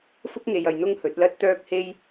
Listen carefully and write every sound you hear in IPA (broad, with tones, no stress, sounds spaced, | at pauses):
f ʊ˥ k̚ ŋ e˨ j ɐ˨ j n̪ ʊ˥ ŋ h ɵ˨˥ t̚ l ɐ˥ t̚ t̪ œː˥ k̚ h e˥ j